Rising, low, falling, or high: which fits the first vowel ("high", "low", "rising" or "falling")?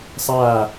falling